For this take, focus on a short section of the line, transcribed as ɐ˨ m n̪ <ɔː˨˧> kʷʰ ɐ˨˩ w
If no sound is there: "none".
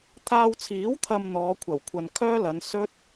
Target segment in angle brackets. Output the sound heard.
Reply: ɔː˨˧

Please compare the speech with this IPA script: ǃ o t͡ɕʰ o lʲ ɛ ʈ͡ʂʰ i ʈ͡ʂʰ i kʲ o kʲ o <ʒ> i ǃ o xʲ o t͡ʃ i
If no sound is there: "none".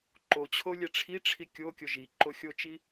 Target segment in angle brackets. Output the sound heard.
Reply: ʒ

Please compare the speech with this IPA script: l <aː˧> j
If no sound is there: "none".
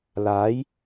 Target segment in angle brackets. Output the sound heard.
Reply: aː˨˥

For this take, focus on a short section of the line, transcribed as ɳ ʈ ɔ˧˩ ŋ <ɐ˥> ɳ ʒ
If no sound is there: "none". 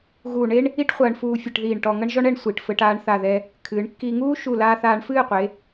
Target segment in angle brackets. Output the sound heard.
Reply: ɐ˥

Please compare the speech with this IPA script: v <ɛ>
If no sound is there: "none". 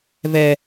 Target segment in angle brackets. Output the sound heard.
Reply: ɛ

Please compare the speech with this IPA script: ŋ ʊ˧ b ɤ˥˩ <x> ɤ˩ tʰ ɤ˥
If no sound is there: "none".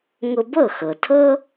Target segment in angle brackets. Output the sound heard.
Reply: x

